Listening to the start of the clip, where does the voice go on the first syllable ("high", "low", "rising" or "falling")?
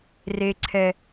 high